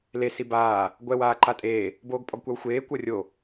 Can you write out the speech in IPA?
l e s i b aː | ɡʷ ɛ w aː ǃ a tʼ eː | b oː ɡ pʼ ɔ ɡ kʷ a w xʷ eː kʷ ɤ rʲ o

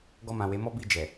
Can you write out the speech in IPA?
ɡ ɔ˧ m ã˨ w e˨˦ m ɔ˦ b i˦˨ d͡ʒ ɛ˨

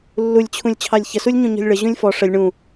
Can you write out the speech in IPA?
lː u lʲ t͡ɕʰ ũ lʲ t͡ɕʰ ɑ lʲ ç ə s u lʲ ɲ ũ ɲ ɔ̤ lʲ ɭ ə ʑ ũ lʲ f ɔ ʂ ə lʲ ɳ ũ

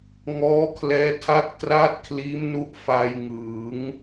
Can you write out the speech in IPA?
ŋ ɔː˦˥ kʰ l ɛː˦˥ tʰ a˥˩ k̚ t r a˥˩ t̚ kʰ l iː˦˥ m n u˦˥ ʔ f a˧ j ŋ ɯː˩˦ ŋ

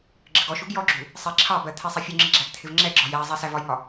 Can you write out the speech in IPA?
ɡ͡ǁ ə ɡ ɔ ʃ u ɡ j ɔ ɡ͡ǁ u | sˤ i ǁʰ ɑ b ɜ t̪ʰ ɛ sˤ i fʲ u ŋ͡ǁ i ɡ͡ǁ æ ɡ t̪ʰ ɪ v ŋ͡ǁ ɛ ɡ͡ǁ ɒ j æ zˤ i s æ v ɒ j ŋ ɒ

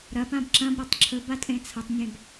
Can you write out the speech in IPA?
ɾ ɐ p ã b ǁ ɐ̃ b ɾ ɐ tˤ ǁʰ ɵ b a tʼ ẽ t͡sʰ ɐ tˤ nʲ ẽ b

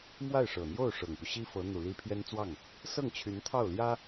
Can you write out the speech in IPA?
m w a˥˩ ɪ̯ ʂ ɤ˨˩ n̪ j o˥˩ ʊ̯ ʂ ɤ˨˩ ŋ p u˦ ɕ i˥ f ɤ˧˥ n̪ u˨˩ l i˥ pʰ j ɛ˥ n t͡s w ɑ˥˩ ŋ | s ɤ˥˩ ŋ t͡ɕʰ y˧˥ n t̪ʰ ɑ˥˩ ʊ̯ l j ä˥

